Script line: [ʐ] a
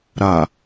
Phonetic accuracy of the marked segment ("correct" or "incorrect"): incorrect